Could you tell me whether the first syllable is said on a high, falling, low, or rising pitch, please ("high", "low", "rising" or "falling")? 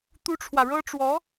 high